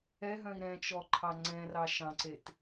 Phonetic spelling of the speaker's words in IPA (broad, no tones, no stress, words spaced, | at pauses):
ɛɦœ̃i̯ ɾɛ̃t͡ʃɔǃʰɑ ŋ͡ǀɛ̃rɑ ʃɑ̃ǀet